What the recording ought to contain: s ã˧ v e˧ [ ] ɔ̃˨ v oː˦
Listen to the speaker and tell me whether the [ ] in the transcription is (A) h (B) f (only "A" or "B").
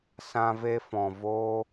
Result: B